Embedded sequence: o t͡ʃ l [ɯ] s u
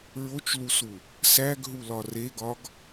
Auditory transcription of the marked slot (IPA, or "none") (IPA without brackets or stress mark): u